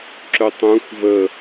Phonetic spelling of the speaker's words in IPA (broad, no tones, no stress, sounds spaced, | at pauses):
ǁ œ tˤ ũ xʷ v ə